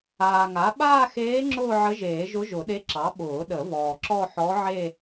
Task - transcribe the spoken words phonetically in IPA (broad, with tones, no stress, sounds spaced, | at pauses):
aː˨ ŋ a˩˥ ɓ aː˥˧ x eː˧˥ ŋ͡ǁ ʊː˥˧ ʕ ə˧˥ ʒ eː˨˩˦ ʒ ʊ˧˥ ʒ ʊ˨˩˦ ɗ e˧˥ ǁ ɑ˩˥ ɓ ʊː˨˩˦ ɗ ə˨˩˦ v ɔː˨ ǁ ɔ˥˧ ħ ɔ˧˥ ʕ e˥˧